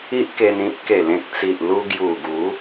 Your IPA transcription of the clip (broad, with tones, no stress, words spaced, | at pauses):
i˦ʔke˧nĩ˦p̚ ke˨˩lẽ˨k̚t͡si˨ʔlu˧ ɡju˨˩ɡu˨˦